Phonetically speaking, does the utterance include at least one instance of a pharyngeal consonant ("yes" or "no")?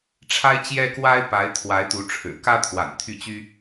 no